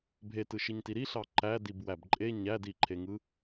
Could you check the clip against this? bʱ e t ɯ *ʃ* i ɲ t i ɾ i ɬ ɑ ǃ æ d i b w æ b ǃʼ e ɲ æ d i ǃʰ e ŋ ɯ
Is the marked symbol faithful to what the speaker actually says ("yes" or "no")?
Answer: yes